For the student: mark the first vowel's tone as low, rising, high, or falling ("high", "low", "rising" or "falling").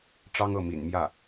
high